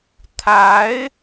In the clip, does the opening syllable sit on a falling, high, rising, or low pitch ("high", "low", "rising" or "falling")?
rising